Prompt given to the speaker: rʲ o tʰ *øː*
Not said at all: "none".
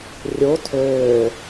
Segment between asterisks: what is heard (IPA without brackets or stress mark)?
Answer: øː